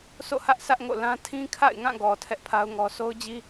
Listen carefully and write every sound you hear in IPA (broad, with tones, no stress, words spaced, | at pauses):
sʰo̰˦˨hä˦ʔ sʰä˦ʔŋo̰˦˨lã˦ tʰĩ˦ kʰa̰˦˨ɪ̯ŋã˦˨ɡɔ˨ tʰɛ˦ʔpʰa˦ʊ̯ŋɔ˦ so˦ʊ̯d͡ʑi˦